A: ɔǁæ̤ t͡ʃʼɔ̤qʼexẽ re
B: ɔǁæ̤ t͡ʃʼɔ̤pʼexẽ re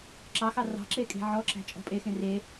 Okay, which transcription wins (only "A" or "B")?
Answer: B